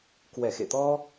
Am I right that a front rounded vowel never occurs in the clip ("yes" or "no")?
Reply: yes